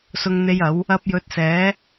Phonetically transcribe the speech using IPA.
s ʊ˨ ŋ n̪ e˨˧ j ɐ˨˥ w | ɐ˧ p̚ j ɵ˧ t̚ s ɛː˨˥

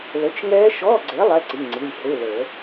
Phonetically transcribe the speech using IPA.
l ə˨˥ t͡ʃ ŋ ɛː˦˥ ʃ ɔ˧˥˧ ɡ͡ǀ e˨˥ lˠ ɛ˧˥˧ ǀ i˩˧˩ ŋ͡ǀ i˩˧˩ lʲ h e˧˥˧ l əː˨˩˦

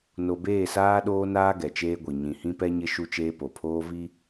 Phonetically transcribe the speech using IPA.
n o˨ b eː˦˨ s aː˦ ɗ oː˦ n aː˦ ɡ ɛ˨ t͡ʃ eː˦ ɡʷ i˨ ɲ ĩ˨ h ĩ˦ p ɛ˦ ɲ ɪ˦ ʃ u˦ t͡ʃ eː˦ p o˨ pʰ oː˦ v i˦

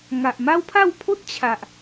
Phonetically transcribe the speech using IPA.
ŋ a˨ ʔ m a˦ w pʰ a˥˧ w pʰ o˦ t̚ t͡ɕʰ a˨ ʔ

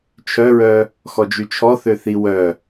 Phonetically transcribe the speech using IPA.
t͡ʃʰ œ ɹ œ | x ɔ d͡ʒ y t͡ʃʰ ɔ θ ø θ i w œ

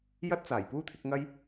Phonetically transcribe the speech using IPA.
j ɐ˥ t̚ t͡s aː˨˩ j p uː˥ t̪ʰ ɪ˨˥ k̚ ŋ ɐ˥ j

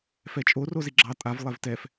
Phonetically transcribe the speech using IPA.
f ɛ t͡ʃʼ o r o z i ɡ͡ǁ ɑ tʼ a v lˠ ɛ v t ɛ f

